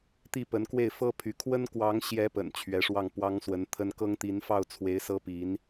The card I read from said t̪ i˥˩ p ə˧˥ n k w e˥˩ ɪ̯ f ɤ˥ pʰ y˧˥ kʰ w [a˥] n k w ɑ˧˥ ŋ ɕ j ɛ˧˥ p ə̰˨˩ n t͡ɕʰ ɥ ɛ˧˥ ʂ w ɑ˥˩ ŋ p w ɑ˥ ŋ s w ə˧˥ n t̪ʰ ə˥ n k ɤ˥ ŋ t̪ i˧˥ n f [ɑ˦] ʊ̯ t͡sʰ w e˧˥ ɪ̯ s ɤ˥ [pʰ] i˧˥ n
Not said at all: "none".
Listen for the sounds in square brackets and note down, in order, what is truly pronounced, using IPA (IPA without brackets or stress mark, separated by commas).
ə˥, ɑ˥˩, p